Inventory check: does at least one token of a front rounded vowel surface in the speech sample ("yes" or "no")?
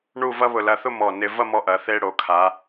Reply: no